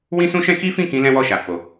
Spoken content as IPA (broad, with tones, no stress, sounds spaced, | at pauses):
w ĩ˦ s ũ˦ ʃ ɛ̃˦ k i˦ f ĩ˦˨ k ĩ˧ l ɛ̃˦ w ɔ˦˨ ʃ a˨ f o˨